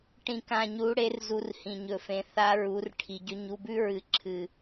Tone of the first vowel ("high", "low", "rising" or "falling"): low